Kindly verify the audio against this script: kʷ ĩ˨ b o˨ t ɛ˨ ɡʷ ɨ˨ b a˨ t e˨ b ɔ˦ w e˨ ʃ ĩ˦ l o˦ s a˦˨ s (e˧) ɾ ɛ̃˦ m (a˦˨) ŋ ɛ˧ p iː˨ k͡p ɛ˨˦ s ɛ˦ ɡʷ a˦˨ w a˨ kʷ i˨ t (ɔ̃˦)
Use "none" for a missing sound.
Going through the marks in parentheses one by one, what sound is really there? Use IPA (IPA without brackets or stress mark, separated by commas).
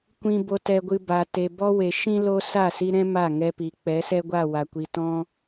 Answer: i˧, a˦˨, ɔ̃˦